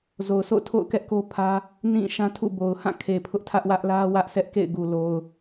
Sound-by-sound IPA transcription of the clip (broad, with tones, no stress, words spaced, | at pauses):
zo˨ʊ̯sʰo̰˦˨ʊ̯tʰo̰˦˨ʊ̯ kɛ˦ʔko˦ pʰä˦ | nĩ˦˨ ʃã˦tʰṵ˦˨bo˨ʊ̯ hã˦˨kʰe˨ pʰʊ˦ʔtʰä˦ʔwä˦ʔ lä˦ wä˦ʔsʰɛ˦ʔkḛ˦˨ɪ̯ɡu˨ lo˨ʊ̯